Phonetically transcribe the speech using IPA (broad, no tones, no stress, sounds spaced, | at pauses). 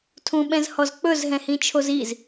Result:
tʰ ũ ɓ ɛ̃ z h ɔ z k͡p ɵ z ɦ ɛ̃ h ĩ t͡ʃʰ o z i z